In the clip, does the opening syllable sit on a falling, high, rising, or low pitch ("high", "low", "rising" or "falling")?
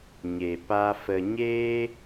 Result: low